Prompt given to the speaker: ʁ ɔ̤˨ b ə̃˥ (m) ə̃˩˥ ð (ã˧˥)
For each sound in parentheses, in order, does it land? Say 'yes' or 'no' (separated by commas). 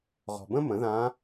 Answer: yes, yes